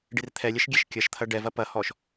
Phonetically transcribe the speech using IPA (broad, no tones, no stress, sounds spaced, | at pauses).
ɖ i r t̪ʰ ɛ lʲ ɛ ʃ ɡʲ ɛ ʃ kʲ ɐ ʃ t̪ʰ ɐ ɖ ɛ v ɐ p ɐ h ɔ ʃ